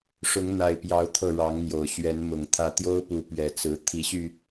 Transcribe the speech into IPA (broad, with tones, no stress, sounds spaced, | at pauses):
ʂ ʊ˨˦ ŋ n̪ a˨˩ ɪ̯ p j ɑ˨˦ ʊ̯ t̪ʰ ɤ˥˨ ɻ ɑ˨˦ ŋ n̪ j o˨˩ ʊ̯ ɕ ɥ ɛ˨˦ n m ʊ˨˩ ŋ t̪ʰ ä˨˦ t̪ j o˦ ʊ̯ p u˨˦ p ɥ ɛ˨˩ t͡s ɹ̩˨˦ t̪ʰ i˨˦ ɕ y˧